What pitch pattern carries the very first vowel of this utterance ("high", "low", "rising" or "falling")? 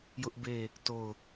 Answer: high